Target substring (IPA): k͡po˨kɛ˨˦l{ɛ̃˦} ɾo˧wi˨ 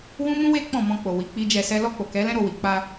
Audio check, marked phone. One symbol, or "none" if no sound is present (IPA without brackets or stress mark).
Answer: ɛ̃˦